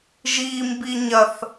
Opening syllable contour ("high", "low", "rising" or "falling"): high